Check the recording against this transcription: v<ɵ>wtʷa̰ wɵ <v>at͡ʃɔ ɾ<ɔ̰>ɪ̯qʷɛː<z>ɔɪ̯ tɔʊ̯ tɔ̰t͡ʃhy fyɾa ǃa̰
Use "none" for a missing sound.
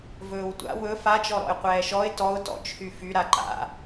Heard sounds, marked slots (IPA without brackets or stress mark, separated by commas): ɵː, f, ɔ̰, ʃ